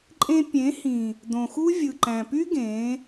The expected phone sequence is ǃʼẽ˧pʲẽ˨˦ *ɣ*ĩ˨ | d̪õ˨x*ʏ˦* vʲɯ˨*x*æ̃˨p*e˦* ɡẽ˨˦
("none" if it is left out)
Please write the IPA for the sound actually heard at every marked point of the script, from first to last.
h, u˦, ǃ, y˦

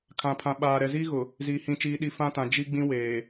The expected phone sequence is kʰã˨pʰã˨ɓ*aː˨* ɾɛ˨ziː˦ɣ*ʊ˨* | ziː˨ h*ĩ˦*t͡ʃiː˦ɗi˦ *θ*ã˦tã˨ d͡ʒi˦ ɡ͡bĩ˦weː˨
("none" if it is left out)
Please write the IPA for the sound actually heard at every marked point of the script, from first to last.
aː˨, ʊ˨, ĩ˦, f

